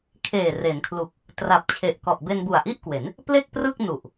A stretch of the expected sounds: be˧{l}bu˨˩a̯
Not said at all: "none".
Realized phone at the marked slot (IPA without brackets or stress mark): n